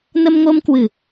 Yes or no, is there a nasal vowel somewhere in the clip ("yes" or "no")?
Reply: no